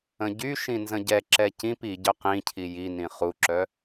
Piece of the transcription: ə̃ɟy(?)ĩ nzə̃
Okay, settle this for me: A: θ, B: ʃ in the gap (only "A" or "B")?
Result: B